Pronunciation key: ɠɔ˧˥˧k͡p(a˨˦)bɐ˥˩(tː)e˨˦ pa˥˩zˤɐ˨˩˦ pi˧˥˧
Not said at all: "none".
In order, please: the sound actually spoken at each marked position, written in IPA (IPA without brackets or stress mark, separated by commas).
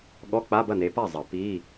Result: a˧˥˧, n